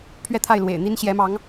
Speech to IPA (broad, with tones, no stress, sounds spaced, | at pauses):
pʰ ɥ ɛ˥˧ t̪ʰ a˥˩ ɪ̯ l w ḛ˨˩ ɪ̯ n̪ i˥ n ɕ j ɛ˧˥ m ɑ˧˥ ŋ